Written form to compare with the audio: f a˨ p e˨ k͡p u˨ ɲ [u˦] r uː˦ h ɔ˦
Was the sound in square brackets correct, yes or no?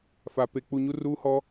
yes